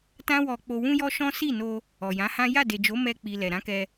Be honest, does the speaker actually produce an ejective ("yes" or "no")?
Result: no